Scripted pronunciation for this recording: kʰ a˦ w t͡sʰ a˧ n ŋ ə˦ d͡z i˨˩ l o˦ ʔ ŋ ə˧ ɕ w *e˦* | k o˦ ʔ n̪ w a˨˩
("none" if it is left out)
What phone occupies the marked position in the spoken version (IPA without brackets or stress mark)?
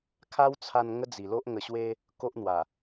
e˦